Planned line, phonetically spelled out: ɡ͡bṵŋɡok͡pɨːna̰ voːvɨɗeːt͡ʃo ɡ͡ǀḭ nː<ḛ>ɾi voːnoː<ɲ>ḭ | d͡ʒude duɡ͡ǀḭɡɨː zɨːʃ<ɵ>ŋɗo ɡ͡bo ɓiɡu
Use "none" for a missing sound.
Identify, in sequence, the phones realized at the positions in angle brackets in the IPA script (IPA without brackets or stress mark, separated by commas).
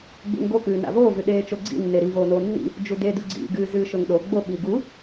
e, nː, ɵ